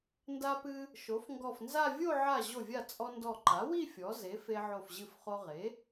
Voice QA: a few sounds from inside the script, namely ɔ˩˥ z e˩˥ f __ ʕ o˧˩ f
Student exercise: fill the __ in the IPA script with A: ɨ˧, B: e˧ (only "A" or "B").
B